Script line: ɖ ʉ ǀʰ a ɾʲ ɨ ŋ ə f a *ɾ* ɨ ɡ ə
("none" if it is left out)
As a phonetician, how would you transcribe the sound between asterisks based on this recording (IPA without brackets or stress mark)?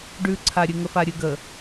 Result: ɾʲ